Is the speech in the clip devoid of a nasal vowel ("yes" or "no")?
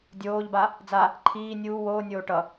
yes